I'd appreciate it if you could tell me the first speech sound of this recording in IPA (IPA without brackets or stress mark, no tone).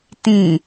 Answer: t